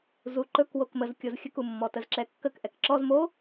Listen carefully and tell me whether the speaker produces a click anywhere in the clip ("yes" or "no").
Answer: yes